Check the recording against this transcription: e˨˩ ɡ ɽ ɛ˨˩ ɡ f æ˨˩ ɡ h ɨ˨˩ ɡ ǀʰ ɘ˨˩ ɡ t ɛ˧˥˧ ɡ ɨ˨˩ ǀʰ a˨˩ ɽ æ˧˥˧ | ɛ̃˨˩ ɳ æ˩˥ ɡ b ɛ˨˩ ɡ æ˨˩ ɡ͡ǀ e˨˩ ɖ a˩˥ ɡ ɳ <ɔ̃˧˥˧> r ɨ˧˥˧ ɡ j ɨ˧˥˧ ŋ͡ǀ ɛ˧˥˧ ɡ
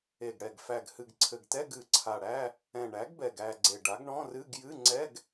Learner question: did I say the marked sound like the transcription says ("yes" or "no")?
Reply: yes